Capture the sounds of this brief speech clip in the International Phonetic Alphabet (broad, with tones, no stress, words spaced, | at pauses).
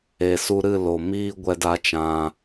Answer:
e˨su˧ɾɨ˦˨lo˨ miː˧ ɡʷɛ˦da˦t͡ʃã˧